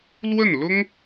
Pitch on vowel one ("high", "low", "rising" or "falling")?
falling